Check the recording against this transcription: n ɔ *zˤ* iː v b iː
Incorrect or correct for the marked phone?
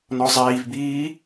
correct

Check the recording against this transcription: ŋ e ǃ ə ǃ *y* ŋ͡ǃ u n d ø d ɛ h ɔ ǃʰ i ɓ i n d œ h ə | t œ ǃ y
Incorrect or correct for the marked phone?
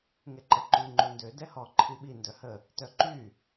correct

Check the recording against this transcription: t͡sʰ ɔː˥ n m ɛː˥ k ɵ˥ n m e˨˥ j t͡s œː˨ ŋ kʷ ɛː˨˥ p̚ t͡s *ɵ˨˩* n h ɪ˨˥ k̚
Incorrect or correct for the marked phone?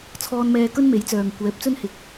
incorrect: ɵ˥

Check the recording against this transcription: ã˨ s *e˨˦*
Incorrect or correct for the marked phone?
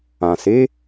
correct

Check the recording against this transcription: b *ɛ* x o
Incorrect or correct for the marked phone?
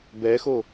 correct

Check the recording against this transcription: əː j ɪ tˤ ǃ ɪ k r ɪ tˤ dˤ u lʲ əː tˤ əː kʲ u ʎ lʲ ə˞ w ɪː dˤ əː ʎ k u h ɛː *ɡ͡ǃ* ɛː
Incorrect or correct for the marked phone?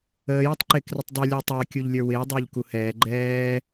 correct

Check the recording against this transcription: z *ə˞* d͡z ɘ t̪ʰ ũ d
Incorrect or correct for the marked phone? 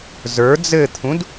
correct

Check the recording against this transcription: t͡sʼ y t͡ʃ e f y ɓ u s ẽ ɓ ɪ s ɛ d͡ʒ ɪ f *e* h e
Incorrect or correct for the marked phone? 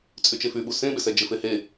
correct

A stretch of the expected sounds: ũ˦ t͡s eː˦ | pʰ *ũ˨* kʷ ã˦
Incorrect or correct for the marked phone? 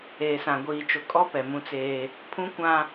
incorrect: ũ˦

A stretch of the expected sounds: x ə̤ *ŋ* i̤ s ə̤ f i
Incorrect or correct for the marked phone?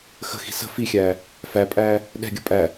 incorrect: x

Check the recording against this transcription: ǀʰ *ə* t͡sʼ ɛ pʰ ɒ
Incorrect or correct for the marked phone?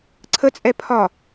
correct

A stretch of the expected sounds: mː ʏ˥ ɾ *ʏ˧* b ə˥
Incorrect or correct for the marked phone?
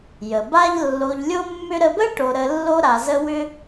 incorrect: ə˧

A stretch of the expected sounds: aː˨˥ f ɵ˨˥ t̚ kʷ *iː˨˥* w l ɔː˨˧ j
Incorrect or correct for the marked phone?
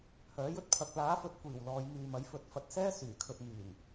incorrect: iː˨˩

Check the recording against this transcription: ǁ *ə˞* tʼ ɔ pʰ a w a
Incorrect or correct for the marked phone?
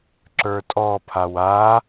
correct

